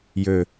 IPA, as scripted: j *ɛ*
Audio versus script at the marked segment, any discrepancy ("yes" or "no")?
yes